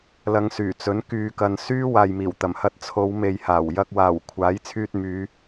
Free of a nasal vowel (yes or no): yes